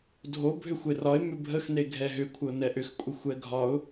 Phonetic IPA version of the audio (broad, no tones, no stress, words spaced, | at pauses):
dʱo bʱʏxʷerɒɪ̯ mʏbʱəxne ɡʱɛɦʏ kʷʰəʊ̯nɛʔʏxkʷʼə xʷɛɡʱɒʊ̯